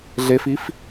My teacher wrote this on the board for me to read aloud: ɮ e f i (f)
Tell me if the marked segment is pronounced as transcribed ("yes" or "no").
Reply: yes